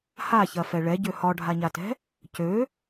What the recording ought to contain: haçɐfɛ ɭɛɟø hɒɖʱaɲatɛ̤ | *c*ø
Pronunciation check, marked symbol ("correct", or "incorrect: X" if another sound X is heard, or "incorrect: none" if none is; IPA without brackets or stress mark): correct